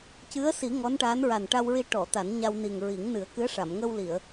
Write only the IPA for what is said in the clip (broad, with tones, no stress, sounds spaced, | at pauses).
c ɨ˧˥ ə̯ s i˨˩˦ ŋ ɔ˧˥ n ʈ aː˧˥ n ɹ a˨˩ n ʈ a˧ w ɹ i˧ ʈ ɔ˨˩˨ t̪ a˨˩˦ n ɲ a˧ w n i˨˩ ŋ ɹ i˨˩˦ ŋ n ɨ˨˩˦ ə̯ k ɨ˧˥ ə̯ ʂ a˨˩˨ m ŋ ə˧ w l i˨˩˨ ə̯